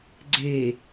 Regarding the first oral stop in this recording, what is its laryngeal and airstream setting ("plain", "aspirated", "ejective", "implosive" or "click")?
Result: click